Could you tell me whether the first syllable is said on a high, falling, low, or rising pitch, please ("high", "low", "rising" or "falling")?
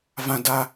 high